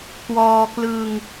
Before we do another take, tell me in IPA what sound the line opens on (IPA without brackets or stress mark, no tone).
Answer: k